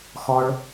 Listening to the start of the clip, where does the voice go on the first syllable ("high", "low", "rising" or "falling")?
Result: high